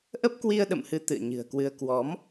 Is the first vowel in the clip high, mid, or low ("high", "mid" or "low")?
mid